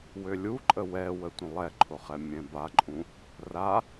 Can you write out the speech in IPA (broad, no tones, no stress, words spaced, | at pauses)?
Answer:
wølʲuǃʼə wɛwə tʷə̃lˠɛǃʰʊχɛ mʲɛ̃baǃʼũ | ra